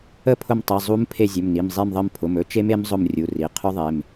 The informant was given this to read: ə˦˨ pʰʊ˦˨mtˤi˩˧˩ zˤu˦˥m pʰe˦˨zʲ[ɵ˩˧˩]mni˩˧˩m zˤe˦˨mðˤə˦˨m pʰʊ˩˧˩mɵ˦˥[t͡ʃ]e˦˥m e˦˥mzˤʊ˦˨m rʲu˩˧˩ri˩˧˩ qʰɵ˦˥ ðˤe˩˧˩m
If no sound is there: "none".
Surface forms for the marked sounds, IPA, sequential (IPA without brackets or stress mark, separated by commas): ɵ˩˧˩, t͡ʃ